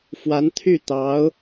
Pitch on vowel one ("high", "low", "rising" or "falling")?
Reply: rising